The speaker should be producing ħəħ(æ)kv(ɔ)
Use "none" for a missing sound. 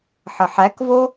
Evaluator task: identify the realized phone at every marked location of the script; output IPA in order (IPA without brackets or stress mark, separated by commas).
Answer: æ, o